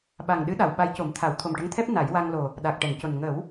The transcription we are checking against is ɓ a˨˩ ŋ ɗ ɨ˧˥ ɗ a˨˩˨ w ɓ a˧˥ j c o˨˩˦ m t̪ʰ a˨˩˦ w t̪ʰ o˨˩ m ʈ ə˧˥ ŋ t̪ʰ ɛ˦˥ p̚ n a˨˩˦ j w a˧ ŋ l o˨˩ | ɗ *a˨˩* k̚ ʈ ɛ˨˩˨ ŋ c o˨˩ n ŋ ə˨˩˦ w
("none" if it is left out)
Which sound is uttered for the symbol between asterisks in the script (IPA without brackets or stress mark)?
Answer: a˨˩